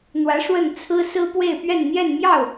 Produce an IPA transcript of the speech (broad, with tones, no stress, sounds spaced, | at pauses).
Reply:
n̪ w ä˧˥ ʂ w ə˥˩ n t͡sʰ ɹ̩˥ s ɹ̩˥ p w e˥˧ ɪ̯ p ɥ ɛ˥˧ n n̪ j ɛ˥˧ n m j ɑ˥˩ ʊ̯